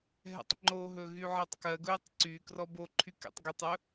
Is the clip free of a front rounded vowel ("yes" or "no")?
no